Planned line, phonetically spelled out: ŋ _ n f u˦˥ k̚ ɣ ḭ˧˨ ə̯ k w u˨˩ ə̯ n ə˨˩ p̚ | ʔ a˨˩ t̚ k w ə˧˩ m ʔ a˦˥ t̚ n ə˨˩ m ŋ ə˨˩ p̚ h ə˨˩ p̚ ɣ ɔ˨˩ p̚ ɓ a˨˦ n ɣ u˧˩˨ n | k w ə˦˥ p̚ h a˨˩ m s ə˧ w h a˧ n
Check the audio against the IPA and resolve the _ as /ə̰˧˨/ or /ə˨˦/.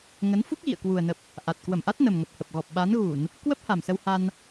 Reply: ə˨˦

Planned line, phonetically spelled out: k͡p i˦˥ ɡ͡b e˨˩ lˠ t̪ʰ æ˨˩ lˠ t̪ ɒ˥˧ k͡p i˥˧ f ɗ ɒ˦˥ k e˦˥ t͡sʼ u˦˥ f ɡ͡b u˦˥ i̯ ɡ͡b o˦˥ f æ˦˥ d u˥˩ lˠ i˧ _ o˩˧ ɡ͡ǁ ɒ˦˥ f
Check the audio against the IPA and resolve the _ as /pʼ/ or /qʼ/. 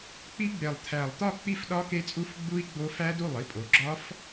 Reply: pʼ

